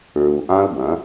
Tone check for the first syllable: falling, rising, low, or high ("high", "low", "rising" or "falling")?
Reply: low